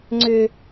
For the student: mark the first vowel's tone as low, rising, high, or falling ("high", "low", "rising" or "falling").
high